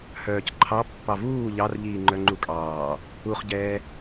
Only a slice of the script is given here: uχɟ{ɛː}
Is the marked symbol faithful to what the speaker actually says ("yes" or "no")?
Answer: yes